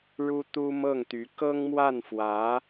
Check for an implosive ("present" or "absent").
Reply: absent